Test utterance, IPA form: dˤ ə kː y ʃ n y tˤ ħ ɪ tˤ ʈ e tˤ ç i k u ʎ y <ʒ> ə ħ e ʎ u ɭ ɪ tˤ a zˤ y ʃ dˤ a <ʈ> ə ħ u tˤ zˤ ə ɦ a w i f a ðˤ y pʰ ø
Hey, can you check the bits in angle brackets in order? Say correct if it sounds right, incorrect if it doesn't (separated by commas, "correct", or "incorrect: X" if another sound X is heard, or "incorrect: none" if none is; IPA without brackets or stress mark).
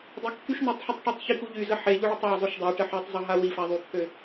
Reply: incorrect: z, correct